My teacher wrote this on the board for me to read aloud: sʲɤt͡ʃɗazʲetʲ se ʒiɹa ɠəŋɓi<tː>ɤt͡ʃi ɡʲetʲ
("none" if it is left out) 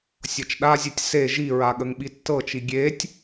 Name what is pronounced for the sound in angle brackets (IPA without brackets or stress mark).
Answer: tː